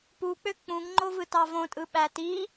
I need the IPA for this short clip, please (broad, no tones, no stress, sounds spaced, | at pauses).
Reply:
p u k͡p ø k͡p ũ ŋ ŋ͡ǃ o v ɯ t ɑ v õ tʼ ɯ ɓ æ t i